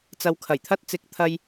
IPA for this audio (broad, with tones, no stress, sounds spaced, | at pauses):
t͡s ɐ˨ w kʰ ɐ˨˩ j t̪ʰ ɐ˧ t̚ t͡s ɪ˨˥ k̚ t̪ʰ ɐ˥ j